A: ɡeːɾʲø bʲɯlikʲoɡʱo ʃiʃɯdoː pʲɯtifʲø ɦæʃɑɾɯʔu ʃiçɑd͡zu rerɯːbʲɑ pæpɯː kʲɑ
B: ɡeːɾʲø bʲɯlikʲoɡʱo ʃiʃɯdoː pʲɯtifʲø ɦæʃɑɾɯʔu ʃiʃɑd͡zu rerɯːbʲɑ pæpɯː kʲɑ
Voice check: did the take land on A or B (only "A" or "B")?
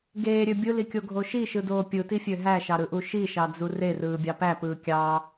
B